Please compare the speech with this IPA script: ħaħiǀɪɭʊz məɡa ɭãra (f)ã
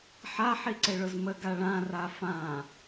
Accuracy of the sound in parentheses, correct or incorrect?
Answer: correct